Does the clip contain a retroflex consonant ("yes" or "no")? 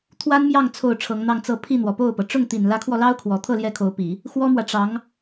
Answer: yes